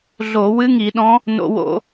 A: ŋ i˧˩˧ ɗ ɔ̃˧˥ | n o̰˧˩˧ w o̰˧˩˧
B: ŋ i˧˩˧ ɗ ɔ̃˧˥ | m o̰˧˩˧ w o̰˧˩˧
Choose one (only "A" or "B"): A